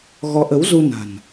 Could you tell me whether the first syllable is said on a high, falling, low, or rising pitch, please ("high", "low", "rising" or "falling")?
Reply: rising